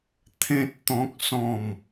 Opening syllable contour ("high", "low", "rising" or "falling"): high